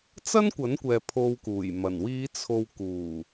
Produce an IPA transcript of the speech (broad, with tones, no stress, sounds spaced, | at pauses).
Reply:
t͡s ɐ˥ n kʷ ɐ˨˥ n kʷ ɛː˨ pʰ o˧ w k uː˨˩ j m ɐ˨˩ n w iː˨˧ t͡sʰ o˨ w k uː˨˩